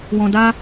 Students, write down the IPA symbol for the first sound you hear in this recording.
w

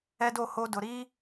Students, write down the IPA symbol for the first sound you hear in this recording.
ɛ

